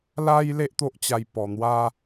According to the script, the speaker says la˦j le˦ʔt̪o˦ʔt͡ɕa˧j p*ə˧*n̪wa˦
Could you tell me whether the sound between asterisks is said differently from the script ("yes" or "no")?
yes